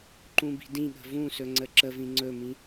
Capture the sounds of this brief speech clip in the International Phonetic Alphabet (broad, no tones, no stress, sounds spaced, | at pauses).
ǃ ũ b i̤ d ĩ ɠ ə̤ v ũ s ɵ ŋ͡ǀ ə ǁ ə v ĩ ŋ͡ǀ ɵ m ĩ